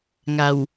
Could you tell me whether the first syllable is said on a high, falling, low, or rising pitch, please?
low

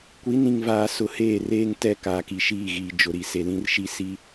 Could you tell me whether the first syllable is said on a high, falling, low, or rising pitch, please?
rising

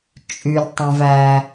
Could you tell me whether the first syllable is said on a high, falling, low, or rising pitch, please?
low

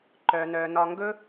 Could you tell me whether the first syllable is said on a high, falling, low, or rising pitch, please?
low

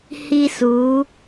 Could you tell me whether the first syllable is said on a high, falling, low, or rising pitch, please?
high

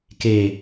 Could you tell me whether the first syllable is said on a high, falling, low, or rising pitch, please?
low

